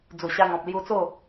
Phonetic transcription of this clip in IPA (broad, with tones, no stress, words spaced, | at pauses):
d͡zu˨˩ɕa˧ŋɔ̃˨p̚ lju˧t͡so˥˧